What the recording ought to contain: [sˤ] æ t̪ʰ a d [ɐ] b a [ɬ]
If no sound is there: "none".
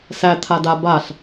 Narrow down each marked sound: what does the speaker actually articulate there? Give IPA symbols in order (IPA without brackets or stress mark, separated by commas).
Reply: s, a, ɬ